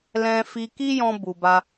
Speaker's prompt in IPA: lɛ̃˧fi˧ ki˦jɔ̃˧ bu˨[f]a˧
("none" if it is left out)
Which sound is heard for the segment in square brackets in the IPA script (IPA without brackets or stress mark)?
b